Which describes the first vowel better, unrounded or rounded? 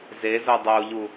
unrounded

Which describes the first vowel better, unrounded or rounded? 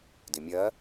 unrounded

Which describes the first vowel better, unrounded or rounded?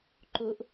rounded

